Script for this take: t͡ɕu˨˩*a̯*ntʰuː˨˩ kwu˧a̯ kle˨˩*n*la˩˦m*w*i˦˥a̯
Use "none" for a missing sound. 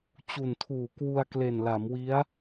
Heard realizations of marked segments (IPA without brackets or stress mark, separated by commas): none, n, w